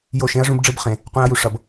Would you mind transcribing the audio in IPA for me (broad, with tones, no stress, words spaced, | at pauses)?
jo˦˨ʃẽ˦ɐ̯ʐũ˦b ɖ͡ʐɯ˦bχẽ˨ | qʷĩ˧ɐ̯ju˨ʂʌ˨b